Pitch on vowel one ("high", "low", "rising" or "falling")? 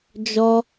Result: high